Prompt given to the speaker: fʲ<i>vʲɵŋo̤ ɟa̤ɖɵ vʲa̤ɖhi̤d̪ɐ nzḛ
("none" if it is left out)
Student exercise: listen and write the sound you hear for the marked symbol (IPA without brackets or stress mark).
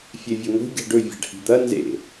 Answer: e